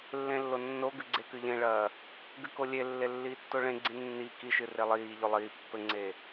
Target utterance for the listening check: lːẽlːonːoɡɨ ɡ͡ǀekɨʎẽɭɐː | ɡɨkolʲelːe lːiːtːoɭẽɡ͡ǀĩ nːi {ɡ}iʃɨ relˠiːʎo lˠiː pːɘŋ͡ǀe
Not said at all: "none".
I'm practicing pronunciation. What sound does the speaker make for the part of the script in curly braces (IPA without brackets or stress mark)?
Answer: k